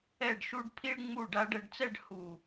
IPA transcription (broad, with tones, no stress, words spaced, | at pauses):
ɛ˧˩ɖʃu˧ɖ pʰi˧ɭŋ͡mu˧˩ ɖa˧ɖɛ˧ɖt͡sɛ˥˧ɖ hu˧˩